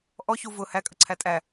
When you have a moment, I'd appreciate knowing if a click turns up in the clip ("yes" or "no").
yes